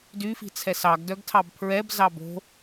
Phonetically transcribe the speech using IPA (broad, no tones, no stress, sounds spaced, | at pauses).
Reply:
d y f i̤ t͡sʰ ɛ s ɑ ɡ d œ ɡ tʰ ɑ b pʰ ɹ ɛ b z ɑ b o̤